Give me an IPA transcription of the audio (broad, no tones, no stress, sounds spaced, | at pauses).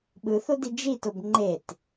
ɓ ɯ θ o d i d͡ʒ i t o b ŋ͡ǃ e t